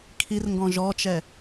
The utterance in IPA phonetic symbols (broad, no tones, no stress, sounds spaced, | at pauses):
kʰ i r ŋ ɡ ɔ̃ ʒ ɔ t͡ʃ ɛ